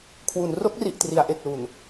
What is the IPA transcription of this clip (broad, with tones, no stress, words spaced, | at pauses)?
kʰwu˩˦n ro˦˥k̚ri˨˩ʔtri˩˦a̯ ʔe˨˩k̚lu˨˩n